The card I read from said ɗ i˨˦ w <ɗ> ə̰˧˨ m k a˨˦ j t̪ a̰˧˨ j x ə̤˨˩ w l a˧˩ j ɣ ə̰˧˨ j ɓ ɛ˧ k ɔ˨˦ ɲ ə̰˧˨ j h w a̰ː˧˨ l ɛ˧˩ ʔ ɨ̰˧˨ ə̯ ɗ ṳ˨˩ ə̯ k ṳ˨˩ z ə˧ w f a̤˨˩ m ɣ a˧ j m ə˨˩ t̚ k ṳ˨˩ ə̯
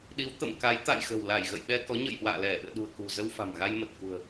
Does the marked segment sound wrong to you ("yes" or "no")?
yes